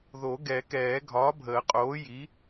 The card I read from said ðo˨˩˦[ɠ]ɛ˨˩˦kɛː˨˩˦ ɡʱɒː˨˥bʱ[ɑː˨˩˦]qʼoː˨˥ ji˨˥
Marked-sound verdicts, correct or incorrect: incorrect: ɡ, incorrect: əː˨˩˦

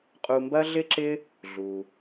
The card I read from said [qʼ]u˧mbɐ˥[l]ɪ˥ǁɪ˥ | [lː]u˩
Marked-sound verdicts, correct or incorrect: correct, incorrect: ɮ, incorrect: ɮ

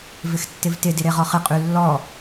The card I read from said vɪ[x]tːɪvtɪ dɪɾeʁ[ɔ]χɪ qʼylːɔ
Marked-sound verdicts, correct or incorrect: correct, correct

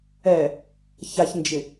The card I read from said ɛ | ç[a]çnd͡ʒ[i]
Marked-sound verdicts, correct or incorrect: correct, incorrect: ɪ

